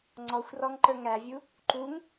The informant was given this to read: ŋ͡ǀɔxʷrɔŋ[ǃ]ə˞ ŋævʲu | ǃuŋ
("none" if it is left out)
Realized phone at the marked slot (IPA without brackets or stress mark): ǃ